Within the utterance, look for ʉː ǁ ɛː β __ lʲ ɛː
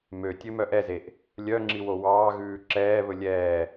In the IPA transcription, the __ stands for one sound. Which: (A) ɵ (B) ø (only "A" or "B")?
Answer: A